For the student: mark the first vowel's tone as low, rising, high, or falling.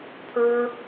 high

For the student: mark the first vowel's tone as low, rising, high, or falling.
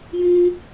high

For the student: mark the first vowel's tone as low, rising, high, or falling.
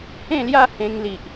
falling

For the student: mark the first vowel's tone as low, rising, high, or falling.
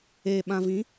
low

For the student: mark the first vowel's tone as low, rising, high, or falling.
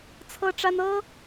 high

